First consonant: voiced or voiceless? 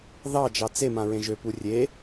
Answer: voiced